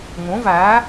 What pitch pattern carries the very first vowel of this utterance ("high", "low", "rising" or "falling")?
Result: rising